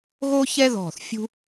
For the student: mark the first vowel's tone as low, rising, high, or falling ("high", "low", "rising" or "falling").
high